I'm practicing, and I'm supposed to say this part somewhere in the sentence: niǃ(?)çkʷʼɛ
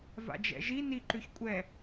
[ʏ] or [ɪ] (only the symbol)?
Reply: ʏ